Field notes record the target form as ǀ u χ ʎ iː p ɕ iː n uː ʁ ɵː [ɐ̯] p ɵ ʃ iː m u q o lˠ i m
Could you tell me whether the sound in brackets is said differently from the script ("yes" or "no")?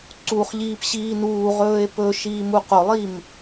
yes